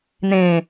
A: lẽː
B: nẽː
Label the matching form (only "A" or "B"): B